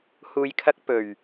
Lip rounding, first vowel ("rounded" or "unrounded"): rounded